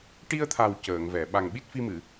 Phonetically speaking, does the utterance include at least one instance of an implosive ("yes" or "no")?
yes